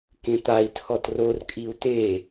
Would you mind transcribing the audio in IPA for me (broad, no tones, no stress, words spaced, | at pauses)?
kẽt̪ai̯ tʰɔtror kʼiu̯te